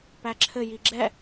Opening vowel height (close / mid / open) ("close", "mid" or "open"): open